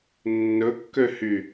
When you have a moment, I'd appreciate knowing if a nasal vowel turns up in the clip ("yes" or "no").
no